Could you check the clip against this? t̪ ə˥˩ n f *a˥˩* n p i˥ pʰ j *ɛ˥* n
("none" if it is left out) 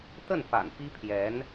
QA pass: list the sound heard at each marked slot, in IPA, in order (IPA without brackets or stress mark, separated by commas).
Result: a̰˨˩, ɛ˧˥